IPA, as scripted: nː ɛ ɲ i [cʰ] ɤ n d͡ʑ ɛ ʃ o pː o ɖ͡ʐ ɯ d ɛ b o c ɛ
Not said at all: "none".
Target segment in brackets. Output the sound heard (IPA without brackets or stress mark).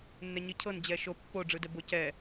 cʰ